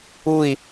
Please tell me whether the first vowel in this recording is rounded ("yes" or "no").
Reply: yes